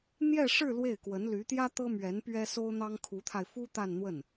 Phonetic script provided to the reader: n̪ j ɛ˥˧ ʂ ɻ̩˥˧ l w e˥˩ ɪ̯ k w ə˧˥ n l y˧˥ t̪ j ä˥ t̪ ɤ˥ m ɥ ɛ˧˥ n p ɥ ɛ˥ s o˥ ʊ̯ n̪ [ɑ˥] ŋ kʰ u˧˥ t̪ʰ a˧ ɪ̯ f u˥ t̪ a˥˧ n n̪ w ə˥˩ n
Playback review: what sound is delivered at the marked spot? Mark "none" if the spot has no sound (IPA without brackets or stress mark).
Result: ɑ˥